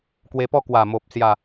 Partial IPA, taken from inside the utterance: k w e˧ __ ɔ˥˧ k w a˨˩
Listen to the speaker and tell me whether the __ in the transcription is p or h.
p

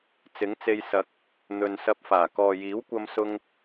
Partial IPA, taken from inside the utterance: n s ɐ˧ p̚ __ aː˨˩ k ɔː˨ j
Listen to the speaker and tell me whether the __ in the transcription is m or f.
f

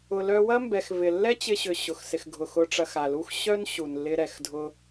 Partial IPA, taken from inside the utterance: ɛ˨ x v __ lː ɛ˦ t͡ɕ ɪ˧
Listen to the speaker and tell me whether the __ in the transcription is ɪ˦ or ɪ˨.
ɪ˨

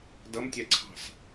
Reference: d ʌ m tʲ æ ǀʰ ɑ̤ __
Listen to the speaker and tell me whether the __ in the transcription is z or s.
s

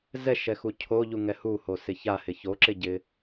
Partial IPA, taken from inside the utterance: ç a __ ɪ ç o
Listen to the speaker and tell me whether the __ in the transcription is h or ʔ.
h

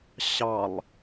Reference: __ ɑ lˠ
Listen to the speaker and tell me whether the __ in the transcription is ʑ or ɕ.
ɕ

